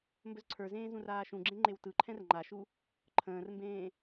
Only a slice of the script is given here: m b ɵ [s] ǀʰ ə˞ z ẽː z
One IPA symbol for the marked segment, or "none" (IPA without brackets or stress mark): z